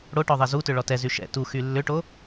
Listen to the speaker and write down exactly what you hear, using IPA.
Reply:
ɽo ʈɔðˤɛzutʏ ɭɔtɛzy ʃɛ̰ tuxy lːʏʈo

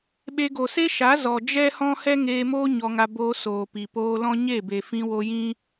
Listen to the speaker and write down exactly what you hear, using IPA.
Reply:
ɓe˧ɡo˨ se˦ʃa˨˦ zɔ˨ d͡ʒɛ˦hɔ̃˦ hɛ˦ŋeː˧moː˦ ɲɔ˧ŋa˧ boː˧soː˨ pi˨poː˧lɔ̃˦ ɲe˦˨be˨fĩ˧wo˧ jĩ˦

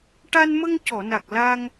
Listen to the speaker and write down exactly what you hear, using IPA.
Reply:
ʈa˧nmə˧ŋcɔ˨˩˨na˨˩k̚ la˧ŋ

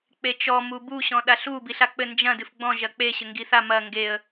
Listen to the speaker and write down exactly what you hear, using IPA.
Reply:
k͡pet͡ʃɔ mubu ɕɔ̃ɗaɬu biɬak͡pɘ nd͡ʒɐ̃ dɨfɡ͡bɔ̃ ʒɐk͡pe ɕɘŋɡiθa mɐ ŋɡeə̯

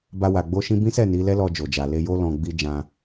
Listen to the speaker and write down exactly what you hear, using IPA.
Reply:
ba˧wa˨ ɡ͡bo˧ʃĩ˧bĩ˦sɛ˦˨ ni˨˦ lɛ˦lɔ˧d͡ʒo˨d͡ʒa˨ le˧jo˦ lɔ̃˧ɡ͡bi˦ d͡ʒã˧

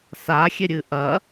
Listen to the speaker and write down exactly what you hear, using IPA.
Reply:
saxʲeɾʲɨ ʔɐ

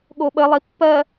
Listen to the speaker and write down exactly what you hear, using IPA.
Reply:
ɠoɓəlˠi pːɜ

